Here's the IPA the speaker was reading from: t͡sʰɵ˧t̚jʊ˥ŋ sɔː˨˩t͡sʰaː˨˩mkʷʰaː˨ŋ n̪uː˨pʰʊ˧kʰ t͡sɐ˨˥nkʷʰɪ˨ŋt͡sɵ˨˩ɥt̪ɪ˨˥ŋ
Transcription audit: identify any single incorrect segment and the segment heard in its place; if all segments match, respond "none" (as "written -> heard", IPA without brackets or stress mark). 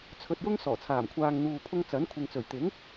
kʰ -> ŋ